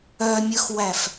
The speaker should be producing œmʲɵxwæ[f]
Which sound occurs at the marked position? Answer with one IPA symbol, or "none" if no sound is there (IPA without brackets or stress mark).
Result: f